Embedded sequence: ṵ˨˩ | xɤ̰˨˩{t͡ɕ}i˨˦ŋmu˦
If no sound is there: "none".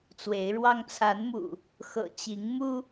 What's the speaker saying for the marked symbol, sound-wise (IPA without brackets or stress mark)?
t͡ɕ